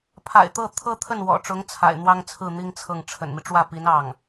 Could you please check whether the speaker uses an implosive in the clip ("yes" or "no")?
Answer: no